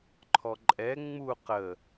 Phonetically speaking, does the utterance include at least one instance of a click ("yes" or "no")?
yes